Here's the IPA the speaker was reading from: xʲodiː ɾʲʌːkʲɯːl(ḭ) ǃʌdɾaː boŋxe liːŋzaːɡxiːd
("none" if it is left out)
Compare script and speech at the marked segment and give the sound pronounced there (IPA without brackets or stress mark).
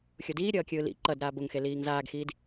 ḭ